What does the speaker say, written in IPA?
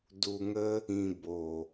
d u˧ ŋ ə˦ | ĩ˧ b o˨

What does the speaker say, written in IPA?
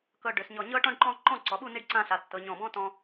k ɤ˧ ɖ ø˩˧ s ɲ ɔ˧˩ ɲ ɤ˥ ʈ ɔ̃˥ ɖ ǃ ɔ̃˥ ǃ ɔ̃˥˧ ǀ ɔ˩˧ ɓ u˥˧ n i˥ ɖ ǀ ã˥˧ ɬ a˩˧ tː ɤ˩˧ ɲ ɔ̃˧˩ b ɔ̃˥ t ɔ̃˧

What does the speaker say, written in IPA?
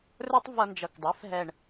r ə˞˥ tˤ v ʌ˧ n d͡ʒ ʌ˨˩ k dˤ ɛ˩˥ f ɦ ɛ˨˩ ɳ

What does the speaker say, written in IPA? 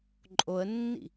ǃʼ o ə̯ nː ḭ

